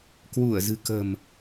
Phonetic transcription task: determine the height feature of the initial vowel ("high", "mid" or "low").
high